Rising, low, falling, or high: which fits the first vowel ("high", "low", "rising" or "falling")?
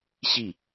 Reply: falling